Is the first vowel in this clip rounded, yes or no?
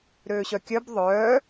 yes